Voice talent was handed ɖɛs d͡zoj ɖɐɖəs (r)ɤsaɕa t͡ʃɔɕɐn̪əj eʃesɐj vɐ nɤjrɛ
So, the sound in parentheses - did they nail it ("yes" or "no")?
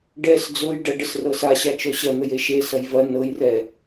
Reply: yes